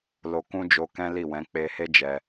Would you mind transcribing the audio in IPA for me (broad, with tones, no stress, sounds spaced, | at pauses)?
l o˧ k ũ˦ d͡ʒ o˧ k ɛ̃˦ l i˦˨ w ɛ̃˨˦ k͡p e˧ h e˦ d͡ʒ ɛ˧